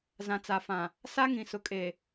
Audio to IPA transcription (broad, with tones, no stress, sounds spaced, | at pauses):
z ã˨ t͡s a˨ f ã˨ | s a˦ ŋ ĩ˨ s ʊ˨ kʼ e˨